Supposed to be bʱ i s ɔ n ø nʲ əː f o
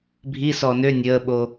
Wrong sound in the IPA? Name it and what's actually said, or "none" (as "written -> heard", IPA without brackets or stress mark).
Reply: f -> ɓ